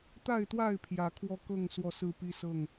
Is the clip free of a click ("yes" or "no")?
yes